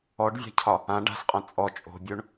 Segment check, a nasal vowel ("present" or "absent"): present